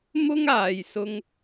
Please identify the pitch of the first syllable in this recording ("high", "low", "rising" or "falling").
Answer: high